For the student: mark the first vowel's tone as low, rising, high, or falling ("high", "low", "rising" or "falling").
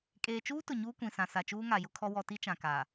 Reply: low